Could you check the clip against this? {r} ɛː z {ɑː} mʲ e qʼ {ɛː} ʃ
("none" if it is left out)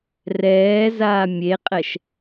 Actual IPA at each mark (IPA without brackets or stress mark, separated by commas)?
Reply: r, aː, ɛ